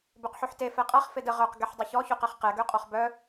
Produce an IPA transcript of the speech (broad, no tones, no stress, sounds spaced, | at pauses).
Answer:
b ø q ħ y ħ t e f ɛ qʼ a χ f e d ə ʁ œ q ɡ ɛ ħ dˤ u ç ɔ ç o q ɛ χ q ɛ ɡ ø qʼ ɔ χ b œ